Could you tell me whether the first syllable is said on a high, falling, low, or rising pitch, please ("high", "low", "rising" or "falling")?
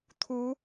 rising